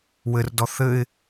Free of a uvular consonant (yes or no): yes